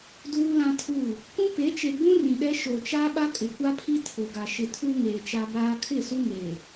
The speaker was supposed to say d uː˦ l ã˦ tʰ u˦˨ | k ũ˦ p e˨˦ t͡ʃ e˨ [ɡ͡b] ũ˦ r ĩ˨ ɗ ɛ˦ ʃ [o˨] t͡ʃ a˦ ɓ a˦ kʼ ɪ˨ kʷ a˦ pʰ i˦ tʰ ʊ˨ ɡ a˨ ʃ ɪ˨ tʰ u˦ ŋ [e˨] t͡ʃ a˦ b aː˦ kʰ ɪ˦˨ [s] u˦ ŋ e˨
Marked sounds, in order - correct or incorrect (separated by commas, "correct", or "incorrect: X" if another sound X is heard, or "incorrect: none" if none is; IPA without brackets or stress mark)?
correct, correct, incorrect: eː˨, correct